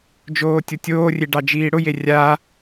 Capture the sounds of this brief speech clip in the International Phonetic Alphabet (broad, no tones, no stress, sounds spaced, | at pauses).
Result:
d͡ʒ oː tʲ o tʲ oː rʲ e ɖ ɑ d͡ʒ iː ɽ ʊ j e rʲ a